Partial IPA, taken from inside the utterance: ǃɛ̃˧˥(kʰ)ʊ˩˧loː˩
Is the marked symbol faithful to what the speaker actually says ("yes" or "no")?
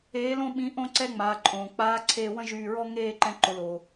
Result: no